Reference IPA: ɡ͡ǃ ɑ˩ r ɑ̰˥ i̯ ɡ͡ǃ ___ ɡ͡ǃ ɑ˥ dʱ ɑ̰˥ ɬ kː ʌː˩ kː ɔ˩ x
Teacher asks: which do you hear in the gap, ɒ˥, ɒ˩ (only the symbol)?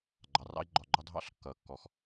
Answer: ɒ˩